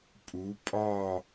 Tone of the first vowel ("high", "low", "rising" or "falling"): rising